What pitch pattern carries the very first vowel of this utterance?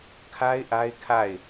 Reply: high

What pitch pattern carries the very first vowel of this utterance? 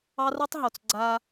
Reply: high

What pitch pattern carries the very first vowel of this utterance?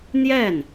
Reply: falling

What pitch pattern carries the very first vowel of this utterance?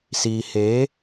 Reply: low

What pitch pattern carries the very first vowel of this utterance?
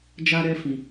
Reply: high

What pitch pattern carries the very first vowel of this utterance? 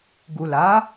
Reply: low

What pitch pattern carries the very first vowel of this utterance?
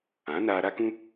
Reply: rising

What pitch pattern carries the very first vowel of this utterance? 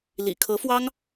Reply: low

